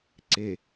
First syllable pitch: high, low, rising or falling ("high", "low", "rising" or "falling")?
low